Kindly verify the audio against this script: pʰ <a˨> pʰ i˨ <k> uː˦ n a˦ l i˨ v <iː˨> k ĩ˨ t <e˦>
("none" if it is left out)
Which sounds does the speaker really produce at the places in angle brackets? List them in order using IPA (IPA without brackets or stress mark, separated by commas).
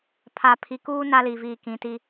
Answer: a˨, k, iː˨, i˦